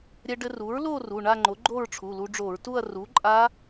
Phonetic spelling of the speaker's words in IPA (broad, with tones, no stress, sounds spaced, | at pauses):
ɾʲ ɛ˧ ɖ ɘ˧ r u˩˥ ɹ l o˥˧ r u˩˧˩ ɳ a˥˧ ŋ͡ǃ o˩˥ ɡ͡ǃ o˥˧ ɹ ʈ͡ʂʰ u˩˧˩ l u˧ ɖ͡ʐ o˧˩˧ ɹ t u˥˧ ɐ̯ r u˩˥ ǃʼ a˦˥